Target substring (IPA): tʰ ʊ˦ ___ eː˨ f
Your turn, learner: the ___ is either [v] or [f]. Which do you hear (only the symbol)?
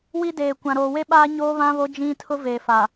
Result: v